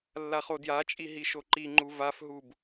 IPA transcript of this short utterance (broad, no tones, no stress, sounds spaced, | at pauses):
lː a χ o d j a t͡ʃʼ i ɦ i ʃ o ǃ i ŋ͡ǃ u v a f ɦ u b